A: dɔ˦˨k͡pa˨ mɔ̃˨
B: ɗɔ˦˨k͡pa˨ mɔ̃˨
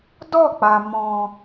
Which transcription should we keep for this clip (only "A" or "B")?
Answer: A